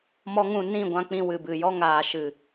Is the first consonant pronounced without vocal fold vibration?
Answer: no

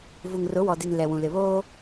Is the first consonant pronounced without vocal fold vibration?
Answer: no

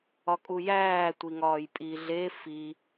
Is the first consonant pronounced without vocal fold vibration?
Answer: yes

